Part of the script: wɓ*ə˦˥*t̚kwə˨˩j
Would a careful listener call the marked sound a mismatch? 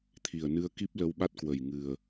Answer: yes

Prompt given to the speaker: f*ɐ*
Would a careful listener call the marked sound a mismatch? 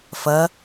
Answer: no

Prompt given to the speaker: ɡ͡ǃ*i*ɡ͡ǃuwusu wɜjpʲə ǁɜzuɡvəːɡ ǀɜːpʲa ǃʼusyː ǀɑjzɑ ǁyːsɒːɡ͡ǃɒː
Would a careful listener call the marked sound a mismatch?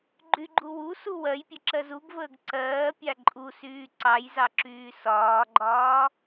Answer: yes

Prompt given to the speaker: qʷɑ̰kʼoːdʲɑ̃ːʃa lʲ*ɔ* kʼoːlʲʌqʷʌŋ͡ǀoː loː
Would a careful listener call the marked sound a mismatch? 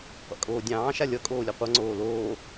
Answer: yes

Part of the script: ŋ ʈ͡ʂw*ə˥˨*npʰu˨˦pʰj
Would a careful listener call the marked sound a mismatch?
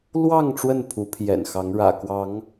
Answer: no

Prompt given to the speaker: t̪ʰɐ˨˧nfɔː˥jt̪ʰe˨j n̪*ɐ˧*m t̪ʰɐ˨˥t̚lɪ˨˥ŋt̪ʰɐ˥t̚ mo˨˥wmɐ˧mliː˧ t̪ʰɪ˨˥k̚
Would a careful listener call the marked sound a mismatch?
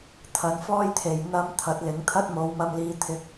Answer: no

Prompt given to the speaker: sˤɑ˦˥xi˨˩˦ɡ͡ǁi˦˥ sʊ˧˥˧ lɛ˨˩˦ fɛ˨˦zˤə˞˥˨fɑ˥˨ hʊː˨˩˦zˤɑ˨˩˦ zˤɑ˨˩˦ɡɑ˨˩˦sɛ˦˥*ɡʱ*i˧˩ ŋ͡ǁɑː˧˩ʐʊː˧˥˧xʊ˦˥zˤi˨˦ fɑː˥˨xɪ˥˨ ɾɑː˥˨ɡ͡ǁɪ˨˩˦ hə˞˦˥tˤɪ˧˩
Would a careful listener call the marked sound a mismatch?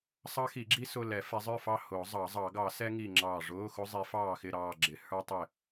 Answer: yes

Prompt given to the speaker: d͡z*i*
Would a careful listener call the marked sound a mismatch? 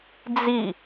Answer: no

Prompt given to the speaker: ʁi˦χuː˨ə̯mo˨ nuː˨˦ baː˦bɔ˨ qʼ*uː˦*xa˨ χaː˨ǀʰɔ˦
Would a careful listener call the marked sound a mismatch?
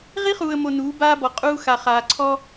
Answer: no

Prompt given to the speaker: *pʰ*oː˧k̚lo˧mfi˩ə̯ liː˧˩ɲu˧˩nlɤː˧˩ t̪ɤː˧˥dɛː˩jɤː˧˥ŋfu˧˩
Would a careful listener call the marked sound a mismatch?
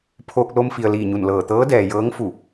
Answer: no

